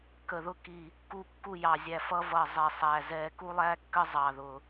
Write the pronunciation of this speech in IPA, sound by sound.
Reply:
kə˦˨ðʊ˥ ki˦˨ | ku˦˨kːu˦˨ jɑ˦˨zʲæ˦˨fʌ˥ vʌ˦˨zˤɛ˦˨sˤæ˦˨ zɛ˦˨ku˥lˠæ˥kːə˥ zˤɑ˦˨ðʊ˦˨

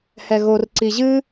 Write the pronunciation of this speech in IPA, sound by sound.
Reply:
hɛɣor ǀiʑɨ

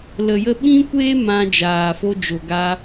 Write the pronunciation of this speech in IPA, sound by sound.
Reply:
lə˨jə˧ɓĩ˦kʷeː˦ mã˧ d͡ʒaː˨fo˧ d͡ʒo˨ɡa˧

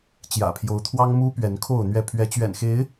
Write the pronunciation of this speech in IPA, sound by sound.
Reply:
t͡ɕjä̰˨˩pʰjo˨˦ʊ̯t̪ʰwɑ˦ŋmu˦ pɥɛ˨˦nkʰo˥˨ʊ̯n̪ɥɛ˥˨ pʰɥɛ˨˦t͡ɕɥɛ̰˨˩nxe˨˦ɪ̯

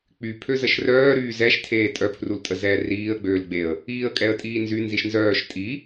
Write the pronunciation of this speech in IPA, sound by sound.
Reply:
k͡py pʰøzəʃrœːɾyː zɛʃ tʰeːtʼœpʰrul tʼəzɛːriːə̯ɡ͡bøːl ɡ͡beə̯ | iːə̯kʼɛə̯tʼiːnzy nziʃnzœːʃ tʼi

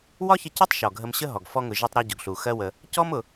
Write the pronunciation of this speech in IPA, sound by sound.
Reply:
wɒ˥çə˧cɔ˥tˤ ʃɔ˩ɡʱə˧mɕə˥ɦɔ˩ɡ fɔ˧ŋʊ˩ ʒi˧tˤɾɒ˧ ɟʊ˩ɡɬu˩ xɜ˧wə˩ | cɔ˥mʊ˩

